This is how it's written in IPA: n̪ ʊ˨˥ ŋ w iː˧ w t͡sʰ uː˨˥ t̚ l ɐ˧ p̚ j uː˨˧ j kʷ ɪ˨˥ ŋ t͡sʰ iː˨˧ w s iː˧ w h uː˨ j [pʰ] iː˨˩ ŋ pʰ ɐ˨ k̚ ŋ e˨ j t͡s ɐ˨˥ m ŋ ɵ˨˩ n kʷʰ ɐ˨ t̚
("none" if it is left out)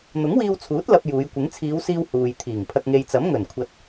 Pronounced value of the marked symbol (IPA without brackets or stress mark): t̪ʰ